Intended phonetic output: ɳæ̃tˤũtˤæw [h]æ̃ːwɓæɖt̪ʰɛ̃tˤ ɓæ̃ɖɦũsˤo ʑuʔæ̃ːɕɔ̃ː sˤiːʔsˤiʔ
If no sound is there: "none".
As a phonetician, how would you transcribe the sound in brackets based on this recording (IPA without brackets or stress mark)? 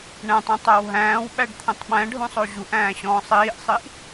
ɦ